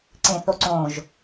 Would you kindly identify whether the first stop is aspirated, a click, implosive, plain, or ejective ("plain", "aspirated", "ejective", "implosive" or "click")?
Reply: click